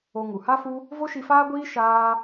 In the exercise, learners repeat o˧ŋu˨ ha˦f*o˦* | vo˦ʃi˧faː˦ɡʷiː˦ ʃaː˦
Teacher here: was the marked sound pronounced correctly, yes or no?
no